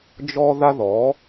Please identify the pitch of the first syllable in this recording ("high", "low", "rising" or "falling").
high